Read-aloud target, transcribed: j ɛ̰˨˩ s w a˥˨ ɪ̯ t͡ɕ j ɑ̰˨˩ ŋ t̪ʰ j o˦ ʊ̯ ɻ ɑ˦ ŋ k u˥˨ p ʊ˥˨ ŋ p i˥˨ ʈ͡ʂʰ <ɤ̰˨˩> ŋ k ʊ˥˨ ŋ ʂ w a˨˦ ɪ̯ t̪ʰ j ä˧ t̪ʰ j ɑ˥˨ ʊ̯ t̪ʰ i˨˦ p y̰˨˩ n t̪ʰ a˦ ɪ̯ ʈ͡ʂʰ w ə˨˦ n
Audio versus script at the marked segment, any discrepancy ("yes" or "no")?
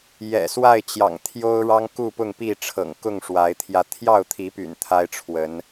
no